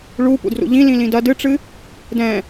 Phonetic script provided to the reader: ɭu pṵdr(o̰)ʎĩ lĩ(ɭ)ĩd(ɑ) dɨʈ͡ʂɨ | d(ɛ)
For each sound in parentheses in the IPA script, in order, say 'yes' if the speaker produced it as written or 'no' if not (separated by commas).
no, no, no, no